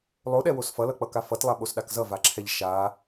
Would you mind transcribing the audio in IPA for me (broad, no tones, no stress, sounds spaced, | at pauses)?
lˠ o ɗ ɛ w o s f ʌ l ʌ k͡p ʌ k a f ʌ t lˠ a ɓ o s ɗ a k z ʌ v a ǁʰ ɛ ʎ ʃ a